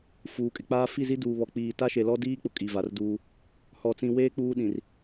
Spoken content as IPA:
f uː˨ kʼ ɪ˨ k͡p aː˦ f i˦˨ z i˦ d uː˨ β ɔ˨ k͡p iː˨ t a˦ ʃ e˨ l ɔ˦ d iː˦ k͡p ʊ˨ kʼ i˨ v a˨ r d uː˦ | h ɔ˨ t͡s ĩ˨ w eː˦ k͡p uː˦ ɗ ĩ˨ r

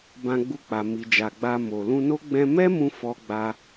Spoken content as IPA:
b ã˧ ɡ͡b u˧ k͡p a˨ m i˨ d͡ʒ a˨ ɡ͡b a˧ m o˨ l ũ˧ n o˦ ɡ͡b ɛ̃˧ m ɛ˦ m ũ˧ f ɔ˦ ɡ͡b a˦

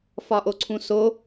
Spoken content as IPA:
f ɒ ʔ o ǀʰ ũ s o

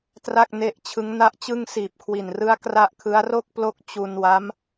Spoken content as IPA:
t r a˥˩ k̚ n e˦˥ ʔ t͡ɕʰ ɯ˦˥ ŋ n a˥˩ ʔ t͡ɕ ɯ˥˩ ŋ s iː˨˩ p̚ kʰ w i˨˩ n r ɯ˦˥ a̯ k r a˥˩ ʔ kʰ ɯ˦˥ a̯ r o˥˩ k̚ p l o˦˥ k̚ t͡ɕ u˧ n w a˦˥ m

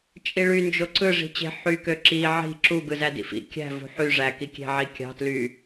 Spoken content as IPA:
t͡ʃʼ i ɭ y n d͡ʒ o ǀ ɯ ʐ i̤ t͡ɕ e̤ ħ y k ø ǁ i ʕ i̤ ǁ u ɡ ɯ z æ d ḭ f ḭ kʲ æ̤ v ṳ ħ y ʐ æ k i kʲ e̤ ʕ i kʲ ɑ̤ t l y

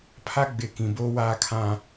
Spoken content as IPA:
pʰ a˦ ɡ͡b ɪ˨˦ k ĩ˨ b oː˦ w aː˦ kʰ ã˦

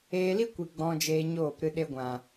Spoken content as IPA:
eː˧ l i˦ kʷ i˨ ɡ͡b ɔ̃˧ d͡ʒ eː˧ ɲ oː˦˨ p ɾ ɨ˧ ɗ e˧ ɡʷ ã˨

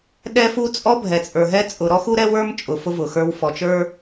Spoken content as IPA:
ɗ ɛ˦ f u˦ t͡sʼ ɔ˦ bʱ ɛ˨ t͡sʼ ə˞˨ ɦ ɛ˦ t͡sʼ ʊ˨ ɾ ɔ˦ x u˦ ɾ ɛ˦ w ə˞˦ m t͡ʃʼ ʊ˨ f ʊ˦ v ʊ˨ x ə˞˦ w f ɔ˨ t͡ʃ ə˞˦

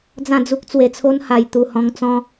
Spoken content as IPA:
d͡z ã˥˧ d͡z u˦ k̚ t͡s w e˧ t͡sʰ o˦ n h a˨˩ j t̪ u˨˩ h ɔ̃˧ ŋ t͡s ɔ̃˦

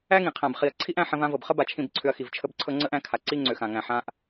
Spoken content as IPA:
æ˦ ŋ ĩ˨ qʰ ã˨ b χ i˨ ɐ̯ ǀʰ i˦ ʔ æ̃˧ ħ ə̃˧ v ã˧ v ɤ˨ b χ ə˦ b a˧ t͡ʃʰ ĩ˦˨ b ǀʰ ʏ˧ ɐ̯ x i˨ v t͡ʃʰ ə˦ b ǀʰ ɤ˦ ŋ͡ǀ ə˦ ʔ æ̃˧ kʰ a˨ ǀ i˦ ŋ͡ǀ ʏ˨ x ã˨ ŋ æ̃˨ ħ ã˧ ʔ

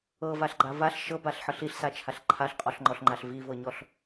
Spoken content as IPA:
ɤ v a ɬ ɡ͡ǃ a v a ɬ ʃ ɤ b a ɬ ħ ɤ ɬ i ɬ s a t͡ʃʰ a ɬ ǃʰ a ɬ qʼ ɔ ɬ ŋ͡ǃ ɔ ɬ ŋ͡ǃ a ɬ v i v ɤ ɲ ɔ ɬ

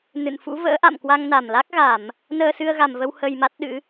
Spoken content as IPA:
n ɨ̰˧˨ n f ṵ˧˥ v ə̰ː˧˥ ʔ a̰˧˨ m k w a˧ ŋ n a˧˩ m l a˦˥ k̚ ɣ a˧˩˨ m | n əː˧ s ɨ˧ ə̯ ɣ a˨˩ m v ə˧ w h ə˧ j m a˦˥ t̚ ɗ ɨ̰˧˥

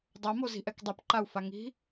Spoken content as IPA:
dˤ a m o z i̤ ʔ ɛ k dˤ ɛ p ǃ a u̯ f a ŋ i̤

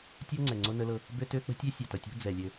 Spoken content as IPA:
tʲ ʌ˦ ŋ͡ǀ ɛ˨ ŋ͡ǀ o˦ n ə˦ l ɤ˦ | b ø˦ t ø˦ k͡p ə̤˦ tʲ ø˦ sʲ ɛ˨ t ʌ˨ tʲ o̤˦ d͡z ɛ˨ lʲ ø˦

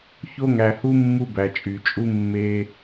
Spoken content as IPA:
ç o˦ ŋ æ˧ h u˦ mː u˧ b æ˨ t͡ʃʼ y˨ t͡ʃʼ u˧ mː e˧

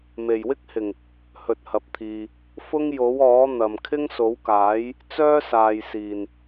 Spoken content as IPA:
m e˨˩ j w ɪ˥ k̚ h ɪ˨˩ ŋ | h ɵ˨ t̚ h ɐ˨ p̚ t̪ʰ iː˨ | f ʊ˥ ŋ j o˨˥ w ɔː˨˥ n̪ ɐ˨ m kʰ ɪ˥ ŋ s o˨˥ w k aː˨˥ j | t͡s œː˥ s aː˨ j s iː˨˩ n

